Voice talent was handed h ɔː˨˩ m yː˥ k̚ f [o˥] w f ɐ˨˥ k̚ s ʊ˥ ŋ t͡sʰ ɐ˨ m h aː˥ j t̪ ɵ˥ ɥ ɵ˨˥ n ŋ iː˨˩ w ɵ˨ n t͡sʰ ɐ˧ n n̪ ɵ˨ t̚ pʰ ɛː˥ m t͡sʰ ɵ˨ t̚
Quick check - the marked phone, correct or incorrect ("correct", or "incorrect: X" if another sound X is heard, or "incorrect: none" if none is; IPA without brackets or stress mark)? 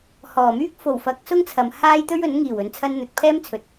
incorrect: o˨˩